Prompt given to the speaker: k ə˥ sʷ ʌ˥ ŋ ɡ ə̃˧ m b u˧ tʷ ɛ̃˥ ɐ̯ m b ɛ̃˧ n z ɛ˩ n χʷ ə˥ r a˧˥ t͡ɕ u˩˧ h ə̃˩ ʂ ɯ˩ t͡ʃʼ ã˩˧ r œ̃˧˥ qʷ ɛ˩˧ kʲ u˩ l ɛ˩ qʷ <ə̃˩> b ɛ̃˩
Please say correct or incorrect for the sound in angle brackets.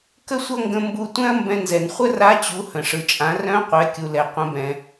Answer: incorrect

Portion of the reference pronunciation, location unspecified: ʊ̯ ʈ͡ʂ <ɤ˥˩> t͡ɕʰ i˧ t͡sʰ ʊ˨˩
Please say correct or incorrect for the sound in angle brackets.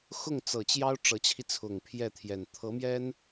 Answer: incorrect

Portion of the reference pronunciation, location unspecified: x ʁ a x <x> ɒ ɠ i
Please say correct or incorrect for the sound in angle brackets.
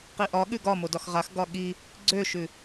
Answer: incorrect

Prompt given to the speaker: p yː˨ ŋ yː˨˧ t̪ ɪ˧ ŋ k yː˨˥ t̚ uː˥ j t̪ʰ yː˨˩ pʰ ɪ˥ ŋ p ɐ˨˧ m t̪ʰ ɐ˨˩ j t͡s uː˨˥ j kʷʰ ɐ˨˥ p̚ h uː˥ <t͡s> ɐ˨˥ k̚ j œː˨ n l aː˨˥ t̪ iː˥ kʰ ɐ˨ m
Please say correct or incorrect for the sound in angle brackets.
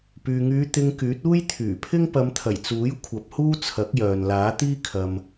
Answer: incorrect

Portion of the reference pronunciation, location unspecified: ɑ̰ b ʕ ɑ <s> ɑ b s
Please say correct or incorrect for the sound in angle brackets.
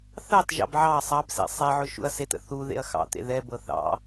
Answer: incorrect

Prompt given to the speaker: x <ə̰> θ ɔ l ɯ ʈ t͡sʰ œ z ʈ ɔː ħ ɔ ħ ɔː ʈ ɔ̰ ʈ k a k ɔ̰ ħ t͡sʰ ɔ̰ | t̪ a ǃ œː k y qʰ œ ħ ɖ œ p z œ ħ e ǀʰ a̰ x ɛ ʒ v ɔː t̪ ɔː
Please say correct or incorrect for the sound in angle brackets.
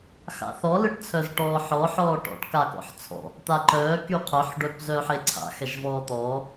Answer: incorrect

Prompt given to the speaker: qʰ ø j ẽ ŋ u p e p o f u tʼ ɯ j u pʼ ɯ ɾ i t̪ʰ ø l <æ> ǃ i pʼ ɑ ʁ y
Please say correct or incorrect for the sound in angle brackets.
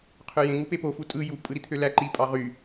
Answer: correct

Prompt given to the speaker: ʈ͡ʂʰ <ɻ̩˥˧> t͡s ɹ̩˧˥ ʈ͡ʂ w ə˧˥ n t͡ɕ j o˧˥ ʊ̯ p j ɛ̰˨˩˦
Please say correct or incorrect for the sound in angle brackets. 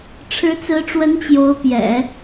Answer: incorrect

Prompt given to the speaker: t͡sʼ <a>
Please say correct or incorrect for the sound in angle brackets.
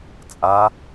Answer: correct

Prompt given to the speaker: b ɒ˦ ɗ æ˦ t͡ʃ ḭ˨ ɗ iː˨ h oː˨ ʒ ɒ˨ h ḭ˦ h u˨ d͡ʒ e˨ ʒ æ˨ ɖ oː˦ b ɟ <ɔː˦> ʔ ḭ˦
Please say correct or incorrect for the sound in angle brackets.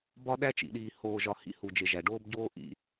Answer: incorrect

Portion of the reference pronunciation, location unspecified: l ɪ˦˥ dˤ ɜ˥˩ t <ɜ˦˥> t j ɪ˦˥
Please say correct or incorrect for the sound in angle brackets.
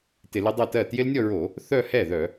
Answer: incorrect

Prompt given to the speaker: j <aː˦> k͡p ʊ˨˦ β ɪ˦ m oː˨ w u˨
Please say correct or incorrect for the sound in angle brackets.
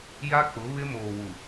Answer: incorrect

